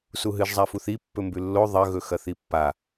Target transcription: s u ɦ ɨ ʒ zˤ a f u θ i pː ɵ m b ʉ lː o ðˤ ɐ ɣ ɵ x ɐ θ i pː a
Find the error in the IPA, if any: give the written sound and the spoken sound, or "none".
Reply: none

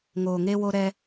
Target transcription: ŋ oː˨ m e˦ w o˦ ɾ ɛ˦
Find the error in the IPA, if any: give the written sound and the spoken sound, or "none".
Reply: m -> ŋ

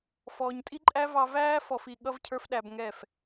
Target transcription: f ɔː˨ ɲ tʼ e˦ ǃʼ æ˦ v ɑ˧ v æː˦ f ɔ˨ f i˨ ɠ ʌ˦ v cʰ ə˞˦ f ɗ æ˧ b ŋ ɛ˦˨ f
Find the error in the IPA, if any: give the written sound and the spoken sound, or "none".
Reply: e˦ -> i˦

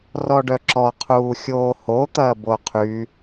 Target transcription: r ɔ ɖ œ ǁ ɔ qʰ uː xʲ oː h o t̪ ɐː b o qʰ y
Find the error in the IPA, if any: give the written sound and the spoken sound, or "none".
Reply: none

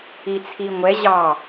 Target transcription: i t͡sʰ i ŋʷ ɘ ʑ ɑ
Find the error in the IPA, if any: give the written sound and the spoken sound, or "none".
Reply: ɘ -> ɛ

